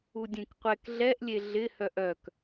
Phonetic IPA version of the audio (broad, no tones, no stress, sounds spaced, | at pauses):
u dʲ ẽ k qʷ ɛ k ɮ ɛ ʔ lʲ e ɮ ɪ h œ ʔ œ k